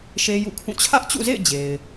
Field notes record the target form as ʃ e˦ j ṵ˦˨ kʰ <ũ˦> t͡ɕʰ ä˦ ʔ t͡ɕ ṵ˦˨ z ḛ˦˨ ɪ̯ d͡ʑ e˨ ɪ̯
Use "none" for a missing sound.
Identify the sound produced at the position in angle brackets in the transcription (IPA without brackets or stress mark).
ũ˦˨